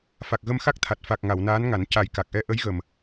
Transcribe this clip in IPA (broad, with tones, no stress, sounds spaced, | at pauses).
f a˨˩ k̚ ɣ ə˧ m x a˦˥ k̚ t̪ʰ a˨˩ t̚ f a˨˩ k̚ ŋ a˨˩˨ w n aː˧˥ n ŋ a˨˩˦ n c a˨˩ j k a˨˩ k̚ ʔ ɛ˧˥ ʔ ə˧˥ j ɣ ə˨˩ m